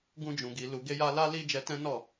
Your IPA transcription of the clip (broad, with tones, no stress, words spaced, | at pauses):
ɡũ˧d͡ʒũ˨ɡi˨ lu˨ɡe˧ja˧la˦ li˦d͡ʒɛ˧tɛ̃˦ nɔ˦˨